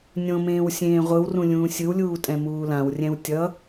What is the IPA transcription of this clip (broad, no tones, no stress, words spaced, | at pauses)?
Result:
nʲõmẽːw sʲẽːʁʷɯwrũ lʲũːsʲɯwlʲuː tʼɛ̃muːlãwrʲɛ̃w tʲʌ